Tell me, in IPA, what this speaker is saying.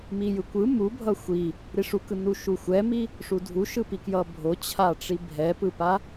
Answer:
mijɯkʷɯ mubʱʌ xʷi | ɾiʂukɯ nuʃuxʷɛmi | ʂudʱuʃɯpi kjʌbʱot͡ɕʰaʈ͡ʂi bʱɛpɯpa

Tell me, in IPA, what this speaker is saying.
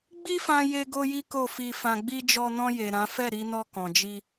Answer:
ɡ͡bi˦fã˧je˧ɡo˧ ji˦ko˦˨fi˧fã˧ ɡ͡bi˧d͡ʒɔ˧nɔ̃˧je˨ ɾã˨˦ fɛ˦˨ɾi˧nɔ˧ kɔ̃˨d͡ʒi˧

